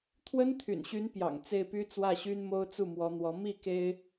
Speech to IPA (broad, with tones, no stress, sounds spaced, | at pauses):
t̪ʰ w ə˥ n t̪ʰ y̰˨˩ n ɕ y˧˥ n p j ɑ̰˨˩ ŋ t͡s e˥˩ ɪ̯ p y˥ t͡s w ä˥˩ ɕ y˥ n m o˥ ʊ̯ t͡s u˥˩ m w ɔ˧˥ n̪ w ɔ˧˥ m i˥˩ k e˥ ɪ̯